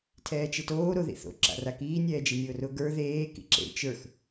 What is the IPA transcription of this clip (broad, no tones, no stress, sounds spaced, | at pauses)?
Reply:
tʰ ɛː t͡ʃ ɪ t oː ɾ o ð ḭ θ o̰ ǁ a̰ r a k iː nʲ ɛː d͡ʒ i nʲ ʊː r ʊ ɡ ə˞ ð eː k ḭ ǁ ḛ t͡ʃ ə˞ x